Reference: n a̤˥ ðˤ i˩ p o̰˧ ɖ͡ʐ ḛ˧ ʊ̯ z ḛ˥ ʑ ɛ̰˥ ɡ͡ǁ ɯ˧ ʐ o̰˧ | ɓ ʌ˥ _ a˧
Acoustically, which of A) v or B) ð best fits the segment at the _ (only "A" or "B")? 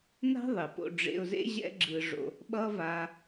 A